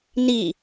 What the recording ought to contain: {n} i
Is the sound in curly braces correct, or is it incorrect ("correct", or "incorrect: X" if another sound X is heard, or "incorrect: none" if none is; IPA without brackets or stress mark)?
correct